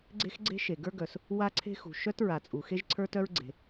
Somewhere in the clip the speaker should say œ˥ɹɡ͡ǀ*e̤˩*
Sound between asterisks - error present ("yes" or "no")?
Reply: no